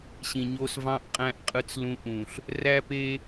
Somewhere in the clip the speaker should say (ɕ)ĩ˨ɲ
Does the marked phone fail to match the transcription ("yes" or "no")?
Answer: no